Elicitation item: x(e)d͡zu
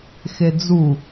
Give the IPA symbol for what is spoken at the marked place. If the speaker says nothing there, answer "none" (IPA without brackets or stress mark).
e